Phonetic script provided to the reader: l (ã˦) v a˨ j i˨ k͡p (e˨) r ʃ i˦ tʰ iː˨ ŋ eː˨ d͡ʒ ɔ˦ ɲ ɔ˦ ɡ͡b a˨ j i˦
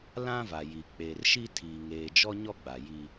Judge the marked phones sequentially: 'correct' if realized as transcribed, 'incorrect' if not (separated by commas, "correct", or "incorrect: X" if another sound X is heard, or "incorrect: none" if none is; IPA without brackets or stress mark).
correct, correct